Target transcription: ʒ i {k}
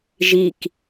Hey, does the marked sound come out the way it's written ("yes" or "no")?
yes